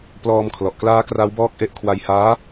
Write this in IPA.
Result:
p l ɔː˧ m kʰ l ɔ˨˩ ʔ k l aː˦˥ k r a˦˥ w b ɔː˦˥ k̚ ʔ e˦˥ ʔ kʰ w a˧ j h aː˦˥

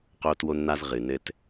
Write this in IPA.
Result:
q oː˦ t w o˦ n n̪ a˦ z ʁ ɨ˨ n ɘ˦ t

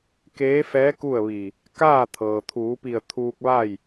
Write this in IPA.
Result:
k eː˧˥ f ɛː˧˥ k u˥˨ ə̯ ʋ i˧˩ | k aː˥˨ t̪ʰ ɤː˩ t̪ʰ uː˩˧ p i˧˩ ə̯ t̪ʰ uː˧ k̚ ʋ a˥˨ j

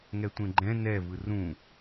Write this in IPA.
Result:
ŋ ɛ tʷ ẽ ɡ͡ǃ ɛ̃ n ɛ v ɯ r ũ

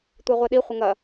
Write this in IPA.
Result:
tʷ e ʁʷ e ɗ i χʷ ə ŋ ɐ

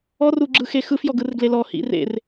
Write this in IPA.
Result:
ɔ r u ɡ͡ǁ ɯ x e x ɯ f j ɔ ɡ ɯ r ɡ l e l ɔ h ḭ r ḛ r

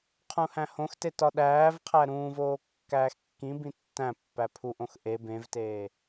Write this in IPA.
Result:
qʰ ũ h æ̃ h õ x t e t ɒ ɗ æː v qʰ æ ɾ ũː v oː kː æː x kː ĩ b ĩ tː æ̃ pː æ pʰ u ʔ õ x ʔ e b ẽ v t eː

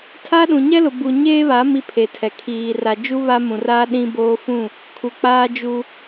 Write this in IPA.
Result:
tʰ a˦ ɗ ũ˨ ɲ ɛ˦ l ʊ˨ b u˨ ɲ eː˦ β a˨˦ m i˦ pʰ e˨ tʰ ɛ˨ kʰ iː˨ r a˨ d͡ʒ u˦ β a˦ m ũ˨ r aː˦ ɗ ĩ˦ b oː˦ f ũ˦˨ | kʰ u˨ k͡p aː˦ d͡ʒ u˦

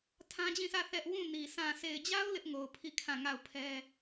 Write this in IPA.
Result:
tʰ ã˦ d͡ʑ ĩ˦˨ s ä˦˨ θ ɛ˦ ʔ w ũ˦˨ n i˨ sʰ ã˨ sʰ e˨ ɪ̯ d͡ʑ a˦ ʊ̯ l ɪ˦ ʔ ŋ o˨ ʊ̯ pʰ i˦˨ kʰ ã˦˨ ŋ a˦˨ ʊ̯ pʰ ɛ˦

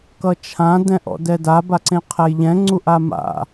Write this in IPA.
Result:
k ʌ t͡ʃʰ ã d ɛ̃ ʔ ɔ̰ d ɛ d a b a ǀ ẽ qʰ ɛ j ʎ ɛ̃ ŋ͡ǀ u ʔ a m a̰

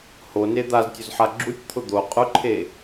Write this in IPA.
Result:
h o n e d̪ a z tʲ ʊ z ħ a ɡ͡ǁ u tʲ t̪ʰ ʊ d̪ o qʼ ʊ ǃʰ e

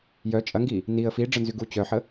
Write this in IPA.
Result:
j œ t͡ʃʼ ɐ ŋ ɡ i | n i ə̯ f i ɖ͡ʐ ə n z y ɡ u t͡ɕ œ ħ ə

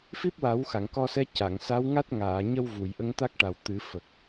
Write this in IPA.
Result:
f i˦˥ p̚ w a˨˩˦ w x a˨˩˨ ŋ k ɔ˧ s ɛ˧˥ c a˨˩˨ ŋ s a˧˥ w ŋ a˦˥ t̚ ŋ aː˨˩˨ ɲ ə˧ w v u˨˩˨ j ʔ ə˧˥ ŋ t̪ a˦˥ k̚ ʈ a˨˩ w t̪ ɨ˨˩˦ f ə˨˩ k̚

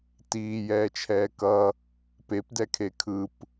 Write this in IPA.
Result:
t iː j ɛː t͡ʃʰ ɛː k ʌ | p e p d ɛ kʰ e kʰ ɯ p

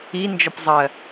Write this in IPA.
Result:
i n d͡ʒ ɔ p zˤ ɜ

